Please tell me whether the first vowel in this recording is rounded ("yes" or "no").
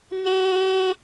no